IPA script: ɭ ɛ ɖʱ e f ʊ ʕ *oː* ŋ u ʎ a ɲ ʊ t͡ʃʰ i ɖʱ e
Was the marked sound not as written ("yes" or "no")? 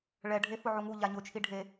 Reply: yes